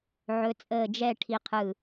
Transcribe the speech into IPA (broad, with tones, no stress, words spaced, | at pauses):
ʕɵ˧˥t͡sʼəː˥˨ d͡ʒɛ˥˨ʈʰi˧qʰɯ˧˩